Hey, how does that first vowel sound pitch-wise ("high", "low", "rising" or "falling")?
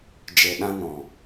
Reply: low